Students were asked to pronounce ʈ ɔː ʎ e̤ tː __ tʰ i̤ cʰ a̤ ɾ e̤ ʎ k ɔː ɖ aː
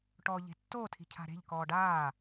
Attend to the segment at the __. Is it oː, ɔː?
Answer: oː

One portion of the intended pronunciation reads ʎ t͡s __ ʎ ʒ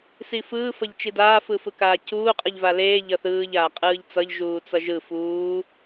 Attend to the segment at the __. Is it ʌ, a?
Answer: ʌ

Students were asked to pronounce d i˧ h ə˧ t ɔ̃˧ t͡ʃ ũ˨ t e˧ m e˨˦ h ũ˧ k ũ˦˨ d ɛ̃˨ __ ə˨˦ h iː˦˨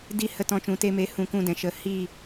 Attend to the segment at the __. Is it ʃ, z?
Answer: ʃ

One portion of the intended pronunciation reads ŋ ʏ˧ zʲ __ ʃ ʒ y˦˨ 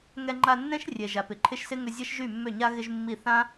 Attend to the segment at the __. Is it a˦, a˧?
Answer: a˦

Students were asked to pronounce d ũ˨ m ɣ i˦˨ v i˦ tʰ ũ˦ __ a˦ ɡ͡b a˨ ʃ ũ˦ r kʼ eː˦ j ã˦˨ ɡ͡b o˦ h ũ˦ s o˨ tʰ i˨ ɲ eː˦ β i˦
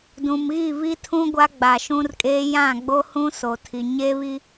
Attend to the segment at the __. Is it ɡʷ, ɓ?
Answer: ɡʷ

